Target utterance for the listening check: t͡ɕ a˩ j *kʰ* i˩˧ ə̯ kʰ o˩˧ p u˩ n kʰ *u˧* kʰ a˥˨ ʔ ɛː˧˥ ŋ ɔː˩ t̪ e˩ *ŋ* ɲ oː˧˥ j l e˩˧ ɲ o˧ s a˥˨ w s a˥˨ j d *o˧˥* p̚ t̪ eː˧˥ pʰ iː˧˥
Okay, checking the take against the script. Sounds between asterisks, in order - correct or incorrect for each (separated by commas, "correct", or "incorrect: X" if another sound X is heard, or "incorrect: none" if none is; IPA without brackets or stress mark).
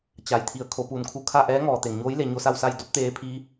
incorrect: t̪ʰ, correct, correct, correct